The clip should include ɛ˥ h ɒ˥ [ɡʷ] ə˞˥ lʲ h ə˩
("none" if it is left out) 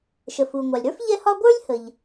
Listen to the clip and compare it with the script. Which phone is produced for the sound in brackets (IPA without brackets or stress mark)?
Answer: ɡʷ